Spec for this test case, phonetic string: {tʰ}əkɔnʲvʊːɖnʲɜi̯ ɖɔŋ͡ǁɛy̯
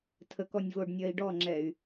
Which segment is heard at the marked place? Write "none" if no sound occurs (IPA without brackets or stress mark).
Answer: tʰ